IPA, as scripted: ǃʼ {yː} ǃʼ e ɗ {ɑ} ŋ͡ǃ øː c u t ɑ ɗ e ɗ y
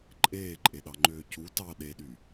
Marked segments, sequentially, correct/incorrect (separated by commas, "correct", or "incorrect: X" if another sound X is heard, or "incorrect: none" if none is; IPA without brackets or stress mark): incorrect: eː, correct